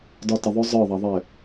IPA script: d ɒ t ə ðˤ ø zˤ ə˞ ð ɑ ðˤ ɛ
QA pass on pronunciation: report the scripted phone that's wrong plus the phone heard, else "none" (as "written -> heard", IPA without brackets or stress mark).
ð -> ðˤ